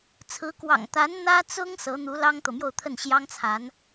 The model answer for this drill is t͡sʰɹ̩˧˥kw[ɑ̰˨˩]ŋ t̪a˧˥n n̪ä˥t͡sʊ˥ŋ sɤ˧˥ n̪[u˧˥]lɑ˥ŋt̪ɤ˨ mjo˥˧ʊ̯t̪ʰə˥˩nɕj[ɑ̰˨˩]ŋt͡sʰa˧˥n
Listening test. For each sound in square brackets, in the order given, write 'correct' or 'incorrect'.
correct, correct, incorrect: ɑ˥

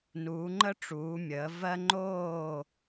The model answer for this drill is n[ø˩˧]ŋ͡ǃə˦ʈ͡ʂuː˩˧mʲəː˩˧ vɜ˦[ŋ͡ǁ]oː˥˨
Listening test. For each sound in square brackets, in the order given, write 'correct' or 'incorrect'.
incorrect: u˩˧, incorrect: ŋ͡ǃ

